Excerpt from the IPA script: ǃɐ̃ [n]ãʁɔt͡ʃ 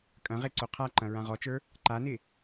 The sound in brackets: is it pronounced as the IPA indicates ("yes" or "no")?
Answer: no